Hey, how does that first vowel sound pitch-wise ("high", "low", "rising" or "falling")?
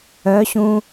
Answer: rising